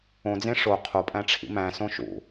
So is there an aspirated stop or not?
yes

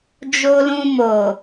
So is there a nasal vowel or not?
yes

